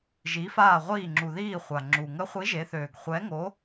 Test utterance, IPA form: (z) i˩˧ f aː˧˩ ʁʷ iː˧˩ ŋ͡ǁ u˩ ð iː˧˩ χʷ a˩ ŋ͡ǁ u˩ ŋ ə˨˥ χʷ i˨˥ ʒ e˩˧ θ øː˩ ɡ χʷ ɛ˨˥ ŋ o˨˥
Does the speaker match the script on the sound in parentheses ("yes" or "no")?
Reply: no